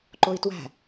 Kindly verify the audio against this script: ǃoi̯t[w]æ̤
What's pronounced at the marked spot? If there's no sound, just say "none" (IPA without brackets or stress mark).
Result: w